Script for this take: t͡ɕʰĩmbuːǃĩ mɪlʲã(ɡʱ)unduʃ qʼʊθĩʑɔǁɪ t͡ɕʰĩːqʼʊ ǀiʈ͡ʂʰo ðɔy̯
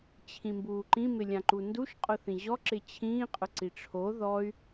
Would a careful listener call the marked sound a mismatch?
yes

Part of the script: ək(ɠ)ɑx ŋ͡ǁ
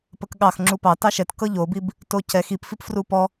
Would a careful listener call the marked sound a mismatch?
no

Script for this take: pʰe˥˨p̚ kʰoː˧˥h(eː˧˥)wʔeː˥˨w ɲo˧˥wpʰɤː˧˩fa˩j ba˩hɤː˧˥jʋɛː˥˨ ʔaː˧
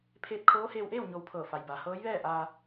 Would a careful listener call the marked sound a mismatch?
yes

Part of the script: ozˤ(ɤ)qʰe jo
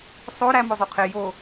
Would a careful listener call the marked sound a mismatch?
yes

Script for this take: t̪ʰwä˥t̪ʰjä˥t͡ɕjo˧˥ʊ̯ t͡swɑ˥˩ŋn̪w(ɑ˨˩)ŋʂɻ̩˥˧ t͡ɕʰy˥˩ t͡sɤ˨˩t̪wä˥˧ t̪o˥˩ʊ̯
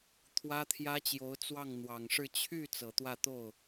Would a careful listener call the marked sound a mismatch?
no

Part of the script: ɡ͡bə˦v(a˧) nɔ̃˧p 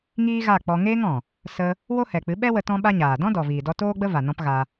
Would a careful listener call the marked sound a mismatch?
yes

